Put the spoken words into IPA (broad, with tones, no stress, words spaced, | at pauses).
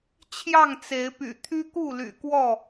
t͡ɕʰjɑ˥˨ŋt͡se˨˦ɪ̯py̰˨˩ t̪ʰy˦ku˥˨ly̰˨˩ kwɔ˥˨